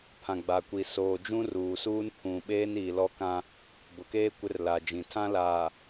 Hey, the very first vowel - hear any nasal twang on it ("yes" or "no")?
yes